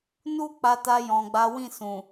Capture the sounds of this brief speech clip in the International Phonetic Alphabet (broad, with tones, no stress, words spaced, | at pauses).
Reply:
nu˦ k͡pa˧ta˧ jɔ̃˨ɡ͡ba˨˦ wĩ˦˨sũ˨